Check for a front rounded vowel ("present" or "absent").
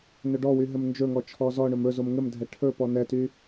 present